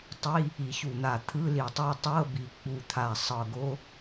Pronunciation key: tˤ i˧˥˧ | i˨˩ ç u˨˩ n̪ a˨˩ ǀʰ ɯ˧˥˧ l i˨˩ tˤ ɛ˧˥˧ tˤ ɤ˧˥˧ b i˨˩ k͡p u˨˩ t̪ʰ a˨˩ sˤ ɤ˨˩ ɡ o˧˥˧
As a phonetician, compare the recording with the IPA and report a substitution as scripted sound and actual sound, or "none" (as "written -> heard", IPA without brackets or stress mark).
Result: ǀʰ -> t̪ʰ